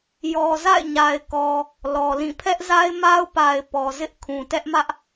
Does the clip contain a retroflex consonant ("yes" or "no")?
no